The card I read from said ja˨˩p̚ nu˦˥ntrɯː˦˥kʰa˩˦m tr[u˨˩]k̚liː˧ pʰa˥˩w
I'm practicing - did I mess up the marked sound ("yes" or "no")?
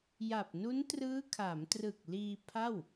yes